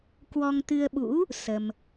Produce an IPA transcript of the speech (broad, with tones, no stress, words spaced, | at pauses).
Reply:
kwɔ˧ŋt̪ɨ˧ə̯ɓṵ˧˥ | sə˧m